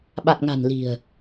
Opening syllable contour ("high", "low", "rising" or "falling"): low